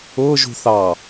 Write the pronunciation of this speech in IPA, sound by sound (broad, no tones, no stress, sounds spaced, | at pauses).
ʊː ʒ ṳ θ ɑ